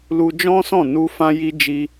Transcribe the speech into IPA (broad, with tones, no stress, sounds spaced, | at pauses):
l u˧ d͡ʒ ɔ̃˦ s ɔ̃˦˨ n u˧ f ã˧ j i˧ d͡ʒ i˧